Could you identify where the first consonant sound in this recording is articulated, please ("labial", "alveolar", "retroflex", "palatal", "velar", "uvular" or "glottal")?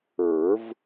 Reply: labial